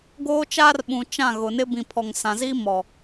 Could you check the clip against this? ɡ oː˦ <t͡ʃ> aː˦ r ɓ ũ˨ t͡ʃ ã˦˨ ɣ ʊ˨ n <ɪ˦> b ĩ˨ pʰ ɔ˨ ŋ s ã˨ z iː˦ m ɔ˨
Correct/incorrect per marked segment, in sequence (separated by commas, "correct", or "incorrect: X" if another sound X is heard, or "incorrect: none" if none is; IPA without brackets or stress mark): correct, correct